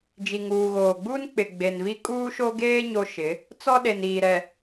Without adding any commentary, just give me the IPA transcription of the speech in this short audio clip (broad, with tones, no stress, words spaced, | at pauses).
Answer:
d͡ʒi˨ŋuː˨ɣoː˨ɡ͡buː˦n k͡pɪ˨ɡ͡be˨nvi˦ kʼuː˦ʃo˦ɡeː˦ ɲo˦ʃɪ˨˦ | t͡sɔ˦ɗe˨n iː˨ɾɛ˨